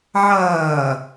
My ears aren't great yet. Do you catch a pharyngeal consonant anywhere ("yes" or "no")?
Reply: yes